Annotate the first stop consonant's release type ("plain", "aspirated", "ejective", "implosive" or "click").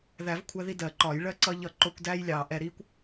aspirated